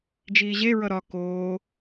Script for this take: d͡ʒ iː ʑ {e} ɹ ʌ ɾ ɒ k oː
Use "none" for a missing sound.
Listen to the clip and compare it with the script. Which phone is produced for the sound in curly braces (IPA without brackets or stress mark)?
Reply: e